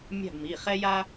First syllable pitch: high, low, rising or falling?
falling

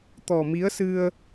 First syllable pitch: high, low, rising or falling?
low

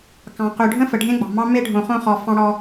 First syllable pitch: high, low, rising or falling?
low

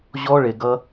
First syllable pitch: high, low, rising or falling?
high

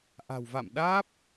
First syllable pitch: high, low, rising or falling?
low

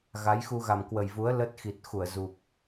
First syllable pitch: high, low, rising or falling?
rising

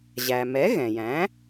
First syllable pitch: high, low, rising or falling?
low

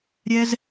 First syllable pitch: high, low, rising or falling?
high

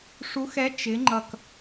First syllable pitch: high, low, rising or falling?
rising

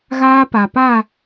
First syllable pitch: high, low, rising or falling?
high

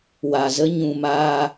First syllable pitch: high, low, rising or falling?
low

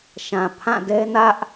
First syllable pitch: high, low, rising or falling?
low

